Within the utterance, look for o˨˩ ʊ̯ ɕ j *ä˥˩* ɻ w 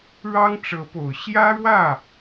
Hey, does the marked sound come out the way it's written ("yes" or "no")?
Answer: no